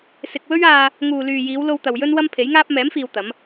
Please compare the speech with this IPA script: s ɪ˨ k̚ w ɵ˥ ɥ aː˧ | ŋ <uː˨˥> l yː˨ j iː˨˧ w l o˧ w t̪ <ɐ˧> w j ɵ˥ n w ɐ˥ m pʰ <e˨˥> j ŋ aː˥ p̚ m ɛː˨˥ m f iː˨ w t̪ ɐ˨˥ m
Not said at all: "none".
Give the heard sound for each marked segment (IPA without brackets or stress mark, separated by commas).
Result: uː˨, ɐ˨, e˨˥